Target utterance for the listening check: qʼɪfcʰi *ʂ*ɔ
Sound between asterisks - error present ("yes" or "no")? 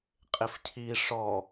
no